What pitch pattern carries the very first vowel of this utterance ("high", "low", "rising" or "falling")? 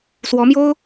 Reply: rising